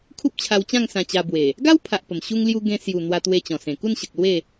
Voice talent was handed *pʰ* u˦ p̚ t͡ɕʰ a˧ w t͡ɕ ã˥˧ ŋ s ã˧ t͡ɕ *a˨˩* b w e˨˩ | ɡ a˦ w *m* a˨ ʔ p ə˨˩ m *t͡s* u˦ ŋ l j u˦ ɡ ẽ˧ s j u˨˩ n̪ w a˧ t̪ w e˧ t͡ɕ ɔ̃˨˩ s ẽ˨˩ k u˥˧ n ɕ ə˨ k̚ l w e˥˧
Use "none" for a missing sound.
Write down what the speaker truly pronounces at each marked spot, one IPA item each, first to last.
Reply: kʰ, a˧, pʰ, ɕ

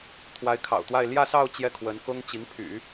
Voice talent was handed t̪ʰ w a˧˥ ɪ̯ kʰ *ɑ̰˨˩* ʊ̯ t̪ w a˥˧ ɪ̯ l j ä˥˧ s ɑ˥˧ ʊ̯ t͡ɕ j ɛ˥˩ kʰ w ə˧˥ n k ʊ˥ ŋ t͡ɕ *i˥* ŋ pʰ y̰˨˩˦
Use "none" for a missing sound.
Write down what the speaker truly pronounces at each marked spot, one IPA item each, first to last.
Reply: ɑ̰˨˩, i˧˥

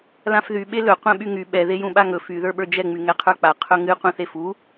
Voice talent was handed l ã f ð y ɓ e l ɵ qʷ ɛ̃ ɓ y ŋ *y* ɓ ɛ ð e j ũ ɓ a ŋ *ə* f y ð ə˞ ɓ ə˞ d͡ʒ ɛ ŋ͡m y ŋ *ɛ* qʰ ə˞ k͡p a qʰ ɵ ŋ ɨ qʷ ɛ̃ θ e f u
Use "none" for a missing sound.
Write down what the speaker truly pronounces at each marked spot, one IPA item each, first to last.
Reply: y, ɵ, ɛ

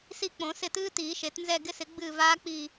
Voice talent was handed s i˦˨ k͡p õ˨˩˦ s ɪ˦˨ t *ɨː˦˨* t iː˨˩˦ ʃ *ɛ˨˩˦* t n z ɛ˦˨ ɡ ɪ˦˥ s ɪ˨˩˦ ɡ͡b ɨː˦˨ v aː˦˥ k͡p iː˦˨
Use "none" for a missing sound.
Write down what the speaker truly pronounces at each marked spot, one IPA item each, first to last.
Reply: ɨː˦˥, e˨˩˦

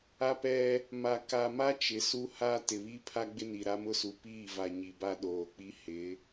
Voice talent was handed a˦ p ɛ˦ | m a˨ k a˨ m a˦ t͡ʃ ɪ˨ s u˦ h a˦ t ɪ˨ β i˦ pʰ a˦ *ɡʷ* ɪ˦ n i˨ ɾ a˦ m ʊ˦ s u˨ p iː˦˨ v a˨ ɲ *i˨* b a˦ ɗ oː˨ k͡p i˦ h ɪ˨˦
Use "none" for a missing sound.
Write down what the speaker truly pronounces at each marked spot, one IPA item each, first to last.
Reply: ɡ͡b, i˨

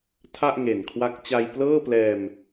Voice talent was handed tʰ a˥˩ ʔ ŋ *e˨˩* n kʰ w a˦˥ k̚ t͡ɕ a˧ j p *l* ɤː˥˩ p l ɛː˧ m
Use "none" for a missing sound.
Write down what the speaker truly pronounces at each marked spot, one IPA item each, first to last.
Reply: e˨˩, l

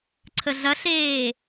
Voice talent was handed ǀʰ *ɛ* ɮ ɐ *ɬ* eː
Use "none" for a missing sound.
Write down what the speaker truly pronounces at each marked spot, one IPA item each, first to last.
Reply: ə, ɬ

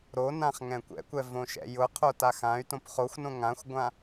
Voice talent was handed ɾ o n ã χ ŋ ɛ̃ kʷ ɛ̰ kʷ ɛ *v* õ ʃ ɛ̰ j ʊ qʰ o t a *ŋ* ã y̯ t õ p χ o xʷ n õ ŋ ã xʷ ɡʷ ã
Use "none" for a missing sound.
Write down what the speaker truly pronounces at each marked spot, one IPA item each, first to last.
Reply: v, x

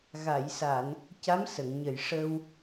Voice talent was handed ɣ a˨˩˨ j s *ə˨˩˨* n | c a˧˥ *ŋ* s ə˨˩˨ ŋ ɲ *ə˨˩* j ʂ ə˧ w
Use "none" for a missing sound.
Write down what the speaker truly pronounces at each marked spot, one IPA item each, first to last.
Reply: a˨˩˨, m, ə˨˩

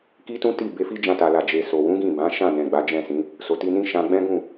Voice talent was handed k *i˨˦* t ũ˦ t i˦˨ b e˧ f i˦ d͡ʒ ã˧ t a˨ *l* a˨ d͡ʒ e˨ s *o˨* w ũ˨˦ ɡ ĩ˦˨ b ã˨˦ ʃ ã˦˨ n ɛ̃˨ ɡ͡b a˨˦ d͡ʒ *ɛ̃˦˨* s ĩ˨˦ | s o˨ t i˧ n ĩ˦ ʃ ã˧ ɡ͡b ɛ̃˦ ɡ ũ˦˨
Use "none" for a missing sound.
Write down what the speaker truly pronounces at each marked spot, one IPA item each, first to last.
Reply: i˦, l, o˨, ɛ̃˦˨

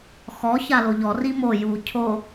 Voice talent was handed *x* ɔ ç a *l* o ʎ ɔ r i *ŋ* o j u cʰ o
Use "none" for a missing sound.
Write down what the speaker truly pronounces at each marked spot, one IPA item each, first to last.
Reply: x, l, m

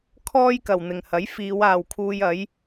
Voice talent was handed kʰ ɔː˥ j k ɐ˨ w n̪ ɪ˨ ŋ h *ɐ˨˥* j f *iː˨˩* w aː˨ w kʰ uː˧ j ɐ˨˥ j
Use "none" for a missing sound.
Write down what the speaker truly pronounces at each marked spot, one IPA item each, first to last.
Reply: ɐ˨˥, iː˨˧

